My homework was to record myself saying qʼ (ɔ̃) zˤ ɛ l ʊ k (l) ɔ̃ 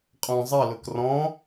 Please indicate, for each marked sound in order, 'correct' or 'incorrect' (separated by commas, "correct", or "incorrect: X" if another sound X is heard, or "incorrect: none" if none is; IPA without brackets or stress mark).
correct, incorrect: r